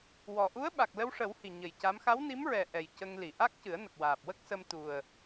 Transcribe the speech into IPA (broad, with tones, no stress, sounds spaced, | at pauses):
w ɔ˨˩ ʔ u˧˥ ə̯ ɓ a˨˩ k̚ l ə˧ w ʂ ə˨˩˦ w h i˨˩ ɲ ə˨˩ j c a˧˥ m x a˧˥ w n i˧˥ m ɹ ɛ˨˩ ʔ ɛ˨˩ j c ə˧ ŋ l i˨˩˨ ʔ a˦˥ k̚ c ɨ˨˩˦ ə̯ n ə˨˩ k̚ w aː˨˩ p̚ w ə˦˥ k̚ s ə˧ m t̪ u˨˩ ə̯